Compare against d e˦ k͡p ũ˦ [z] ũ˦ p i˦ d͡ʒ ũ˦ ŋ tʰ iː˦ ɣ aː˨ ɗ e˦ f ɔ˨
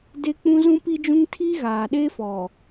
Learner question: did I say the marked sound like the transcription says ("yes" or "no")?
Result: yes